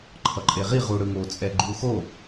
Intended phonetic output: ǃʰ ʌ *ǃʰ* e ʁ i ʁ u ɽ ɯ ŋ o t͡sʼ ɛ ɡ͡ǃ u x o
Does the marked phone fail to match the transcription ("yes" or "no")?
yes